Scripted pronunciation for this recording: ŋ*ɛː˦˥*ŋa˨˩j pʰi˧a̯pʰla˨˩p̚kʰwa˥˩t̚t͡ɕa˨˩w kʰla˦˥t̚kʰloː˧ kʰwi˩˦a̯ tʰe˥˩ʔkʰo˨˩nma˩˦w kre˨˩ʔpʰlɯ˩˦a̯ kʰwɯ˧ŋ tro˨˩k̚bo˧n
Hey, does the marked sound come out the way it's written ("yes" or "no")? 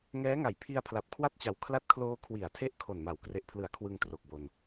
yes